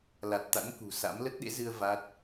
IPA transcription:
l a˨˩ t̚ t̪ a̰˧˥ n k ṳ˨˩ s a̰˧˥ m l ə˦˥ t̚ ɗ ḛ˧˥ z ɨ˧ ə̯ v a˦˥ t̚

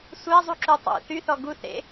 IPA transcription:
sʷ æ zˤ u ǁ u tˤ ṵ θ y θ ɔ ɡ u θ ḛ

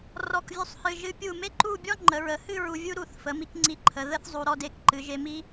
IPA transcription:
r ɔ˧˩ k vʲ u˧ sˤ h ɨ˧˩ ʒ ɨ˧ pʲ u˧˩ m e˥ ǃ u˥˧ bʲ ɔ˥ ŋ͡ǃ ə˩˧ ɹ ə˩˧ h ɨ˥˧ ɹ u˧ vʲ u˥ ɾ u˧˩ θ f ə˩˧ m i˧ k ŋ͡ǀ i˧˩ ǃʰ ə˩˧ ð ə˥ θ zˤ u˧ ɾ ɔ˥˧ d e˧˩ k ǃ ɨ˩˧ ʒ e˧ m i˥

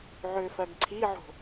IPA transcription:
ʕ ø f ɜ ɡ ǀʰ i ʕ o̤

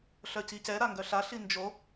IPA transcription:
ɬ œ c i c ɛ ɾ a ŋ ɡ œ ɬ a ɬ i n d͡ʒ o

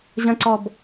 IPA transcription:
ʑ ə̃ ǀ ɔ b

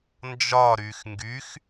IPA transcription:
n d͡ʒ ɒ ɾ y x ŋ ɡ y x

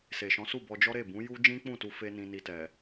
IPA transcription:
s e˨ ʃ ɔ̃˨˦ s u˦˨ b ɔ˧ d͡ʒ ɔ˦ ɾ e˦˨ b ũ˨˦ j u˦ d͡ʒ ĩ˦ k͡p ũ˦˨ t u˧ f e˧ n ĩ˧ n i˧ t ɛ˨

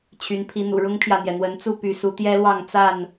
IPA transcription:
t͡ɕʰ y˨˦ n pʰ i˨˦ n̪ ṵ˨˩ ɻ ʊ˦ ŋ pʰ j ä˨ n̪ j ɛ˩ n̪ w ə˨˦ n t͡s u˥˨ p y˨˦ s u˨˦ t̪ j ɛ˦ l w ɑ˥˨ ŋ t͡s a˥˨ n

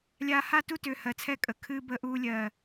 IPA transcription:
lʲ aː˨ h a˦˨ t u˦ t ʏː˨ h ɜ˨ t͡sʰ ɛ˦ kʼ ə˨ kʰ ɨː˦ b əː˦ ʔ uː˦ lʲ ɜ˦˨

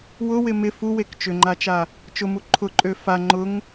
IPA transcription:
w ʊ w ɪ m ɪ f u w e k t͡ʃ ʏ ŋ͡ǃ a t͡ʃ a | t͡ʃ ʊ m u ǃʰ ʊ ǃʼ ø f a ŋ͡ǃ ʊ ŋ

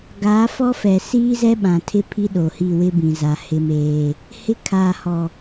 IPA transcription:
ɡ aː˨˦ f ɔ˦ f ɛ˨ s iː˦ z ɛ˦ ɓ ã˨ tʰ ɪ˦ pʰ i˦ ɗ o˨ h i˦˨ w ɪ˦ b ĩ˨ z a˨ h ɪ˦ m eː˦ | h ɪ˦ kʰ aː˨ h ɔ˨

